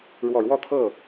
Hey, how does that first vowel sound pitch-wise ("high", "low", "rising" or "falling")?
low